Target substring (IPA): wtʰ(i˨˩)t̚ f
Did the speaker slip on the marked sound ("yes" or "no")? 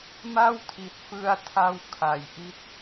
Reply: no